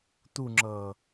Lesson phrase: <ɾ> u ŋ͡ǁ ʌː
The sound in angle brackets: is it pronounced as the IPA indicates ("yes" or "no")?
no